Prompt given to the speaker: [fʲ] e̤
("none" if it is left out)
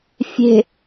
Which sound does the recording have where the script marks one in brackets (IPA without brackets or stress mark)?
fʲ